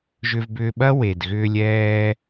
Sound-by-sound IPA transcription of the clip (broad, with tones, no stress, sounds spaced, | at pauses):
ʒ ʏ˧ v b ʏː˧ ɓ ɐ˥ w e˩ d ɣ ʏː˧ lʲ ɛː˧